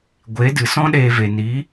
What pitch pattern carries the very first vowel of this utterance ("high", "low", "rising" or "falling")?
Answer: rising